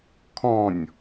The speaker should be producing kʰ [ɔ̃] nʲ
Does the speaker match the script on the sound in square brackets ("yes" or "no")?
yes